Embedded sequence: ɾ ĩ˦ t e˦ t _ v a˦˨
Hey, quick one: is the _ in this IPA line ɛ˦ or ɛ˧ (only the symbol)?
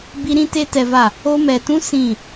ɛ˧